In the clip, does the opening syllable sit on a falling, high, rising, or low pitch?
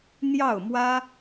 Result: falling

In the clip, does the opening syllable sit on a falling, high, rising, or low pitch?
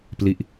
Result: low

